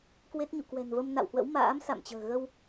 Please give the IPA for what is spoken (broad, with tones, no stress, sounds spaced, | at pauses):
k w e˦˥ t̚ ɲ ṵ˧˨ k w ɛ̤˨˩ n v ə˧ m n a̰˧˨ w h w ə̰˧˥ w m a̰ː˧˥ m s a̰˧˨ m t͡ɕ ə̤ː˨˩ ɣ ə˧ w